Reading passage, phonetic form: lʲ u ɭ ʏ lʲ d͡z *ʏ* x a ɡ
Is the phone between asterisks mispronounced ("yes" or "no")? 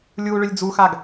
yes